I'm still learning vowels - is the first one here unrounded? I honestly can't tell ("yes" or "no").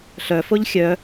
no